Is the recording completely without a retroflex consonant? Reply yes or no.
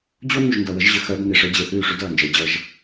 no